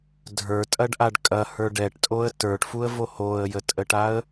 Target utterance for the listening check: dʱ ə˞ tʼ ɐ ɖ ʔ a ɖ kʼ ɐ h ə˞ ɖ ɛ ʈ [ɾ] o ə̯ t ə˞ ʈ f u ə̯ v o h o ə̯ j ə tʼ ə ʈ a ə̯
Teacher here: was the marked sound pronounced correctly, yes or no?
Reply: no